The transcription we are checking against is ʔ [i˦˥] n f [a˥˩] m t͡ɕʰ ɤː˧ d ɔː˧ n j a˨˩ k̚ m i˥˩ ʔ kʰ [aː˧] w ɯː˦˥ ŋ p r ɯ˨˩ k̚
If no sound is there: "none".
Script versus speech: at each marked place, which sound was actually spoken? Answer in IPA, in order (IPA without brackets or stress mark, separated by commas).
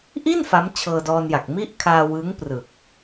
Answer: i˥˩, a˦˥, aː˧